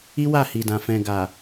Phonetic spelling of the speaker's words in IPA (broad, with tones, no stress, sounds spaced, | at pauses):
i˦ w a˦˨ h i˨ d ã˨ f ɛ̃˨ ɡ a˨